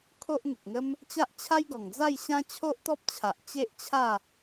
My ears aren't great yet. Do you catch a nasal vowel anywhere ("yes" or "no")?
yes